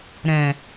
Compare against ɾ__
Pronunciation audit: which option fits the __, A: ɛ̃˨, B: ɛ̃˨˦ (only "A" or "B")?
A